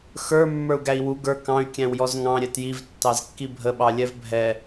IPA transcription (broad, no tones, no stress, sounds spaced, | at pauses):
x ə˞ mː ə˞ u̯ ɡ æ i̯ w u ɡ ə˞ k ɑ̃ y̯ kʲ æ̃ w j ɔ z ŋ ɑ̃ ɾʲ ɛ t j i v tː ɑ z kː i bʱ ə ɓ ɑ lʲ ɛ v bʱ ɛ